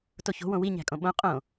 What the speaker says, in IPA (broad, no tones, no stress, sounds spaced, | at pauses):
t o ç o̤ w õ w i ɲ æ̤ kʼ õ ɓ õ qʼ õ